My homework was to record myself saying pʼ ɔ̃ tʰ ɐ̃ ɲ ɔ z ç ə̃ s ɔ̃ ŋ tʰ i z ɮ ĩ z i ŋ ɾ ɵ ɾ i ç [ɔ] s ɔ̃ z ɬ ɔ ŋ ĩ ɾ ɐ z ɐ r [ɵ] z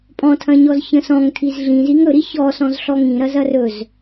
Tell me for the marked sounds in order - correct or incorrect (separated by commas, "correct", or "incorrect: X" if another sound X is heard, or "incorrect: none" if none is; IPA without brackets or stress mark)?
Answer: correct, correct